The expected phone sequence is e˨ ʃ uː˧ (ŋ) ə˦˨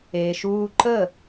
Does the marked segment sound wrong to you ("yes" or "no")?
yes